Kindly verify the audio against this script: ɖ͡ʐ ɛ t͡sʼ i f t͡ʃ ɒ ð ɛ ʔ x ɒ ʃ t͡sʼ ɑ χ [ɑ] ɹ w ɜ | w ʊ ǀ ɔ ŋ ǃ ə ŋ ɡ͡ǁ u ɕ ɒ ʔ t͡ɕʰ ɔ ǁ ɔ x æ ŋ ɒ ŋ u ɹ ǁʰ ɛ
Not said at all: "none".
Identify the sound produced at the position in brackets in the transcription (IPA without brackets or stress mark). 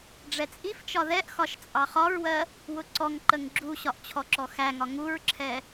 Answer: ɒ